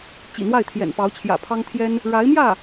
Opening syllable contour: low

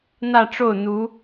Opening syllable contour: falling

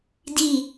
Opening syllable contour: falling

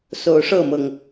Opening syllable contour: rising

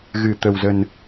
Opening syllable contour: low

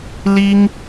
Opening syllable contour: high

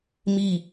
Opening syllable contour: falling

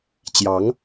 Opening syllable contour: rising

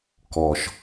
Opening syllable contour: high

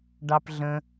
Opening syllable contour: high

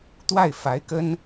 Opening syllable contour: falling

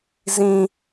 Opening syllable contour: high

